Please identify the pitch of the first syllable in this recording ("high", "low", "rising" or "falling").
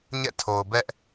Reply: falling